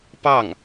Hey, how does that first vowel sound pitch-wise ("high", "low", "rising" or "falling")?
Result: falling